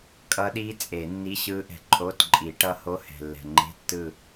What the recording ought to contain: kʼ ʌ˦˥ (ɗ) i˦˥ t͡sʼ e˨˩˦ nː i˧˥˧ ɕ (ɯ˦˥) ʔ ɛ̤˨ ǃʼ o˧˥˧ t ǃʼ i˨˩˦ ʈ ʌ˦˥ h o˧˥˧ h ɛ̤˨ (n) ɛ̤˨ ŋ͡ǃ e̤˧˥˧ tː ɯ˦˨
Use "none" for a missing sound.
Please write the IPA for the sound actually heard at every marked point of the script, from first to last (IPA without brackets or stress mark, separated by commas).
ɗ, ɯ˦˥, lː